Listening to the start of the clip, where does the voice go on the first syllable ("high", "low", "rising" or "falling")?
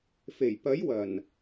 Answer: low